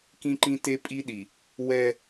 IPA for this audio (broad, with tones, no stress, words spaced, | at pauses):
kĩ˦ǃĩ˦ te˦pʼi˦ɗi˨ | wɛ˦